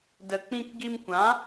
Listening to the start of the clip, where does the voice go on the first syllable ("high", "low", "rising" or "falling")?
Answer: low